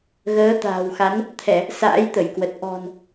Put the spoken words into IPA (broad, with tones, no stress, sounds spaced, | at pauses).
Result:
ɣ əː˨˦ t̪ a̤ː˨˩ w x a˨˦ n | t̪ʰ ɛ˧˩˨ | s a̰ː˧˥ j t̪ ə˧˩ j k w ə˨˩ t̚ ʔ ɔ̤˨˩ n